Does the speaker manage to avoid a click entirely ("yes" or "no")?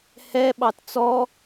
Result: yes